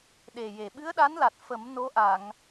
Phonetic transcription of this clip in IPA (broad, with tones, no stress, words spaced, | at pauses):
ɗe˨˩je˨˩ ɓɨ˧˥ə̯ɗa˧˥nla˨˩t̚ fə˨˩˦m no˧˥ʔa˨˩˨ŋ